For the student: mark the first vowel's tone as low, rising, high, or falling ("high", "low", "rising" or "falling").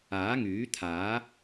rising